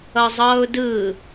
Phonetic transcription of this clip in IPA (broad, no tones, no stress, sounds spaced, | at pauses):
ʌ zˤ ʌː ʊ̯ d ɯ